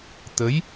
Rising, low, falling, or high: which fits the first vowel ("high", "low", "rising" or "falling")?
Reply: rising